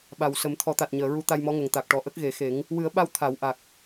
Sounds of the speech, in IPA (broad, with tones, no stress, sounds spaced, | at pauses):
ɓ a˨˩ w s ə˨˩˦ m t̪ʰ ɔ˨˩˦ t̪ a˨˩ t̚ ɲ əː˨˩˨ ɹ u˧˥ t̪ a˧ j m ɔ˧˥ ŋ ə˨˩ ŋ t̪ a˨˩ k̚ ʈ ɔ˨˩ ʔ ə˦˥ k̚ ɣ e˨˩˦ x e˨˩˦ ŋ | w ɨ˨˩˦ ə̯ ɓ a˧ w t̪ʰ a˨˩˦ w ʔ a˨˩ k̚